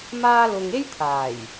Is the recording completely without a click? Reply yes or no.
yes